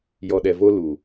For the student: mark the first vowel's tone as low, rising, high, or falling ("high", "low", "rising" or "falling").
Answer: low